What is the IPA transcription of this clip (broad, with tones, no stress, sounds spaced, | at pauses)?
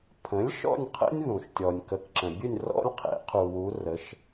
pʰ ə̃˩˥ lʲ ʃ ɔ̰˥˨ nʲ qʰ ə̰˦ nʲ ð ũ˩ ʃ tʲ ɔ˩ nʲ k ə˩˥ k ǁ ə̃˩ bʲ ɨ˥˨ nʲ r ɔ̰˦ lʲ qʰ ḛ˩˥ qʰ u˩ w u˩˧ r ə˩˥ ʃ